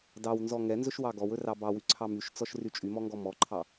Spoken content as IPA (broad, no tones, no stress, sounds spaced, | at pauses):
d ɑ w n z ɔ ŋ ɛ n z ɵ ʃ w ɑ ɡ ɔ w ɵ r ɑ b ɑ w y ǀʰ ɑ m y ʃ t͡s ɔ ʃ r y t͡ʃʼ y m ɔ ŋ ɡ ɔ m ɔ ǃʰ ɑ